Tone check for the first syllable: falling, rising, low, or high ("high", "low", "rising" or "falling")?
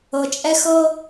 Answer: low